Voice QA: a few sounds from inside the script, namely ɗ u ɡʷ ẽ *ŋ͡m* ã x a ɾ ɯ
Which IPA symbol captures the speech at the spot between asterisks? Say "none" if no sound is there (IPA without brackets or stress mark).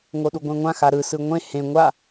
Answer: ŋʷ